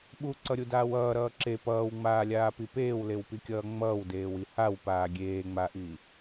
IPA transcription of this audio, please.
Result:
ɓ u ǀ ʌ ɾʲ u d aː w ʌː ɾ ʌː ǁ e p ʌː w ŋ͡m aː lʲ aː p i p eː w l e w p i kʲ ʌː ŋ͡m ʌː w d eː w i h a w p aː ɡʲ eː ŋ͡m a ʔ i

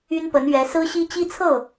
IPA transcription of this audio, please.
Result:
y˥ n p ə˧˥ n ɥ ɛ˧˥ s ɹ̩˥ ɕ i˥ t͡ɕ i˥ t͡sʰ ɤ˥˩

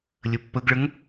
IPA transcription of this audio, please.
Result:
lʲ ə pː ə ɡ ɭ ə ŋ

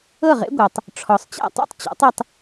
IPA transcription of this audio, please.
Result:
ɤ˥˩ ʁ ḛ˥ ɡʷ ɤ˩ tˤ | ʈ͡ʂʰ ɔ˩ sˤ t͡ɕ a̰˥˩ tˤ ṵ˥ tˤ t͡ɕ ɔ̰˩˥ tˤ e˧ tˤ

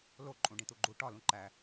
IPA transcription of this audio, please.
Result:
l o ǃʼ ũ ɖ ĩ t̪ u ɡ͡ǃ u ʈ ɒ l ũ ǃ æ

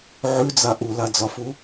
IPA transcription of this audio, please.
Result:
ʕ ʉ d͡z a ʔ u l a d͡z ɒ f u

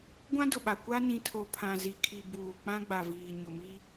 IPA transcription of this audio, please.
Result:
ɡʷ ã˦ d ʊ˨ ɓ a˨ kʷ a˦ n ĩ˨ tʰ o˨ pʰ ã˨ z i˨ kʰ i˨ b uː˨ k͡p ã˦ ɡ͡b a˨ v iː˨ ɲ ʊ˨ m i˦

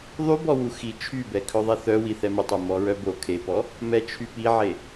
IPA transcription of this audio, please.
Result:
ðˤ y b ɔ w u x i t͡ʃʰ y b ɛ kʰ œ ðˤ ɛ θ œ w i θ ɛ m ə tˤ œ m ɔ ɹ œ b o kʰ e p ɔ | m ɛ t͡ʃʰ y p i ʕ e

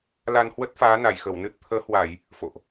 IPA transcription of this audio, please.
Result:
l a˧ n h w ə˦˥ t̚ f aː˨˦ n a˧˩ j x ə˧˩ w n ɨ˦˥ t̚ t̪ʰ əː˨˦ h w a˧˩˨ j | f o̰˧˨ ʔ

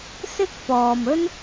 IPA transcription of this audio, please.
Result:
s ɪ˥ k̚ p ɔː˨ m ɵ˥ n

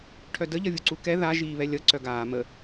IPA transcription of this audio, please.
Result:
ʈʰ œ d ə ʎ ʌ vʲ u ǀ u k ɛ ð a ʒ iː β ɛ lʲ ʌ ǀ œ ɡ aː m ə

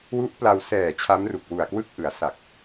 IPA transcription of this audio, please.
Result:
w u˦˥ ʔ p l a˧ w s ɛː˨˩ t͡ɕʰ a˦˥ m r u˨˩ k̚ w u˨˩ a̯ k w ɯ˥˩ k̚ ʔ ɯ˩˦ a̯ s a˨˩ k̚

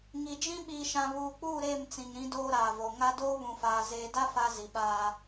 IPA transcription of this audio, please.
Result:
ŋ i˨ d͡ʒ ĩ˦ ɓ iː˨ ʃ ã˨ β uː˨ k͡p uː˦˨ ɾ eː˦˨ m t͡s ĩ˨ ŋ ɾ ĩ˦ d oː˦ ɾ aː˨ v o˨ ŋ a˦ d oː˦ β ũ˨ f aː˨ z eː˨ d a˦ f a˦ z i˨ ɓ aː˦

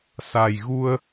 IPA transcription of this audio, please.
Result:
s a˨˩ j ɣ u˧ ə̯

